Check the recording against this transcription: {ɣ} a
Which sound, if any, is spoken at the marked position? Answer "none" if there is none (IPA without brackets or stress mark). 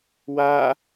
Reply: w